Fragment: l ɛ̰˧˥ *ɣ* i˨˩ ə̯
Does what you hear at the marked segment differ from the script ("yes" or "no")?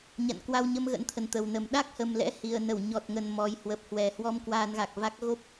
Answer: yes